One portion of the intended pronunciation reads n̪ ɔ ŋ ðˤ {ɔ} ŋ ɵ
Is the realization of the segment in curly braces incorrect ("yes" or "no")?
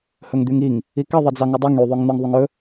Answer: yes